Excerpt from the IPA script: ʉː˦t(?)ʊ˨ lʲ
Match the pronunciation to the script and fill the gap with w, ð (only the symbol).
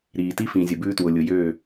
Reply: w